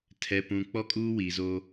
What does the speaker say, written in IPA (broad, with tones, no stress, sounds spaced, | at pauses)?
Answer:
tʰ ɛ˨ p ũ˨ k͡p ɔ˦ kʼ uː˦ w i˨ z o˦